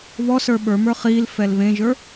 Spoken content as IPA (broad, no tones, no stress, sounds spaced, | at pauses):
β ɔ s ə˞ ɓ ə˞ m ə˞ χ i l f ɛ l β ẽ ʒ ə˞